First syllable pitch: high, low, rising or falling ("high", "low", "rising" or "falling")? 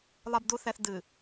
low